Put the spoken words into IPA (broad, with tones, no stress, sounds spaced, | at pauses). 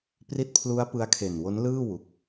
p r i˦˥ t̚ pʰ l u˦˥ a̯ p ɯ˦˥ a̯ kʰ e˨˩ n w o˦˥ n l ɯː˥˩ w u˦˥ k̚